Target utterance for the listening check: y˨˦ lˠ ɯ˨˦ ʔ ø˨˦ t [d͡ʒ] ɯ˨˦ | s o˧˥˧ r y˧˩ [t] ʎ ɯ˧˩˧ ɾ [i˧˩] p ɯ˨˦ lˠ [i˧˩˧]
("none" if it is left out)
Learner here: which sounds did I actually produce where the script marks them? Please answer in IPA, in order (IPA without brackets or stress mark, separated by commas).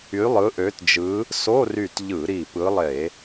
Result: d͡ʒ, t, i˧˩, e˧˩˧